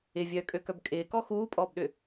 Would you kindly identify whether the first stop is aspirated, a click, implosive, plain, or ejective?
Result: ejective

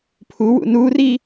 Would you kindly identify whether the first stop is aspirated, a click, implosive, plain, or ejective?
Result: aspirated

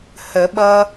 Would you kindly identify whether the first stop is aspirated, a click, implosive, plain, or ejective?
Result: implosive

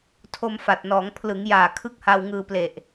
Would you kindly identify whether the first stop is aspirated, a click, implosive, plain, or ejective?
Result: aspirated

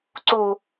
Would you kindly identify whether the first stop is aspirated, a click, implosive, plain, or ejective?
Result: click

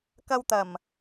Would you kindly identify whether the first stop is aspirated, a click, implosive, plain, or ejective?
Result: plain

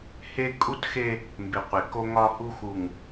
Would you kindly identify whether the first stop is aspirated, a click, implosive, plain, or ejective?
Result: ejective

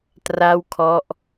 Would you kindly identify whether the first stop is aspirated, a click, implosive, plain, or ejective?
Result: plain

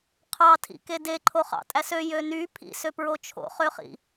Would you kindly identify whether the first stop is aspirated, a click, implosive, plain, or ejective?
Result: aspirated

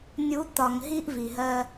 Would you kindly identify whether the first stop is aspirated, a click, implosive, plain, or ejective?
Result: plain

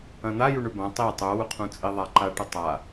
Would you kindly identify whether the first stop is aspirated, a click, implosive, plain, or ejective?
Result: plain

